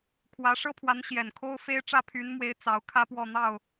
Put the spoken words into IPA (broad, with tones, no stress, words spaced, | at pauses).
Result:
kʰwä˧˥ʂɤ˥pʰwa˧˥n ɕjɛ˨˩nkʰo˥ʊ̯ fe˥ɪ̯ʈ͡ʂä˥ pʰy˧˥nmwe˧˥ɪ̯ t͡sɑ˧˥ʊ̯kʰä˥ pwɔ˥˧n̪ɑ˥˩ʊ̯